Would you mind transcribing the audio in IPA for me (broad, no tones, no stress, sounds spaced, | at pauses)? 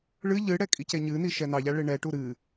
ɭ ɨ ʎ ɨ ɽ ɛ kʼ i c e ɲ ɨ n i ʃ ɛ n ɑ ʎ a ɭ e ɳ ɛ ʈ u ɾ ɨ